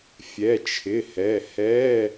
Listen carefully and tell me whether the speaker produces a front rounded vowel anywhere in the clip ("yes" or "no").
no